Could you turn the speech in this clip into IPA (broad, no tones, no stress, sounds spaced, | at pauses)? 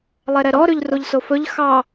lˠ ɛ ɾ ɛ ɾ ɔ ɾ ʉ ʎ r u ʎ s o f ɵ ʎ x ɑ